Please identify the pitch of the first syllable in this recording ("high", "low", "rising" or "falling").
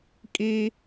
high